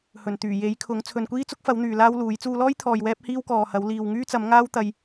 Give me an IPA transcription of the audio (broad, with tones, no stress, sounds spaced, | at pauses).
h ɵ˨˩ n t̪ yː˨˩ j e˨˥ j kʰ ʊ˨˥ ŋ t͡sʰ ɵ˨ n kʷ iː˥ t͡s ʊ˥ k̚ f ɐ˨˥ w n̪ yː˨ l aː˥ w l uː˨˥ j t͡s uː˧ l ɔː˥ j t̪ʰ ɔː˨ j w ɛː˥ p̚ h iː˥ w k ɔː˨ h ɐ˨˥ w l iː˨ w ŋ yː˥ t͡s ɐ˨˥ m ŋ aː˥ w t̪ ɐ˧ j